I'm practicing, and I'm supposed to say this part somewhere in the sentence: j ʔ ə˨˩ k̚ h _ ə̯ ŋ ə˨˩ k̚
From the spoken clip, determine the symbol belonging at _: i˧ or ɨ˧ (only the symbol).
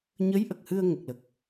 ɨ˧